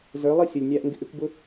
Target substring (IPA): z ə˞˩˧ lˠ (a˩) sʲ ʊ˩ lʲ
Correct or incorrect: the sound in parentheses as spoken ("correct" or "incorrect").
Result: incorrect